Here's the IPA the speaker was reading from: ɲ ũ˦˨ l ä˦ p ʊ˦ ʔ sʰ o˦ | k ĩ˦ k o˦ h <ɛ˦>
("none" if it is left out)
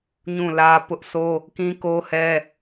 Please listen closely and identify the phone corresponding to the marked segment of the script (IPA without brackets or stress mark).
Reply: ɛ˦